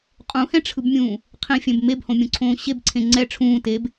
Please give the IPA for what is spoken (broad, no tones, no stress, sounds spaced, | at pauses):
qʼ ũ h ɛ̃ ʈ͡ʂʰ ɯ b mʲ ũː | qʰ ĩ fʲ ɛ̃ b m e b h õ mʲ õ ǀʰ õː ɕ e b ǀʰ ẽ ŋ͡ǀ ɛ ʈ͡ʂʰ ũː t e b